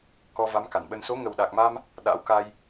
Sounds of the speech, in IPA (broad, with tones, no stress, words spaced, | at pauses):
kɔ˧va˨˦mka˧˩nɓə˧n so˨˦ŋə˨˩wɗa˨˩k̚ma˧m | ɗa̰˧˥wka˧j